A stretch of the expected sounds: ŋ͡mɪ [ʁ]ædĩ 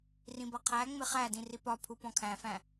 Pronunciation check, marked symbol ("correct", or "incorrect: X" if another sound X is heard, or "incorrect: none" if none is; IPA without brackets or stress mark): incorrect: χ